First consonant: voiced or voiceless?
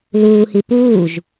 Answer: voiced